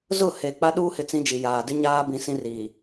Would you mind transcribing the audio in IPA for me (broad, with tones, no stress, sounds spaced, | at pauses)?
z ʊ˦˨ h e˨ k͡p a˦ ɗ uː˦ h ɪ˨ t͡s ĩ˦ d͡ʒ i˨ j aː˨ d ɪ˦ ɲ aː˦ b ĩ˨ s ĩ˦ r iː˨